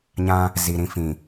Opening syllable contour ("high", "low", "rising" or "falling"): high